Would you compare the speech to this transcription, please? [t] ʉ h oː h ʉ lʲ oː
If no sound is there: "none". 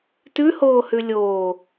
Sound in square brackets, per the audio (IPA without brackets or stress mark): t